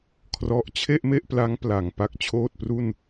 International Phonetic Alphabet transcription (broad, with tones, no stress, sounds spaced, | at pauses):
kʰ r ɔ˦˥ ʔ t͡ɕʰ e˥˩ ʔ m e˥˩ ʔ p l a˦˥ ŋ p l a˨˩ ŋ p a˥˩ k̚ t͡ɕʰ oː˥˩ t̚ p r u˥˩ n